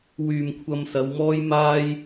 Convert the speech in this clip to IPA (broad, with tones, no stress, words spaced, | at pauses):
wyː˨mkʷʰɐ˧msɐ˨˧wmɔː˥j maː˥j